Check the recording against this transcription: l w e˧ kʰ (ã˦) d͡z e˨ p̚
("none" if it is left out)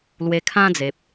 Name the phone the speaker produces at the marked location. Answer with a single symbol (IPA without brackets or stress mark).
ã˦